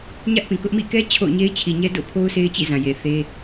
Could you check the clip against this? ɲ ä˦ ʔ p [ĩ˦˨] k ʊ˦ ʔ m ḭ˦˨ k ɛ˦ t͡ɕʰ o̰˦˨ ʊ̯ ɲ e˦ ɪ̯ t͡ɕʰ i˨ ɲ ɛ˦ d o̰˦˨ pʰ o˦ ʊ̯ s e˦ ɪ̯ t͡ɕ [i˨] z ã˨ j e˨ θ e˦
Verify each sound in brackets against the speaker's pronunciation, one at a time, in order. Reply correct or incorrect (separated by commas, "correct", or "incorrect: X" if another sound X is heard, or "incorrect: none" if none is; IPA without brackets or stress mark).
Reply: incorrect: ĩ˨, incorrect: ḭ˦˨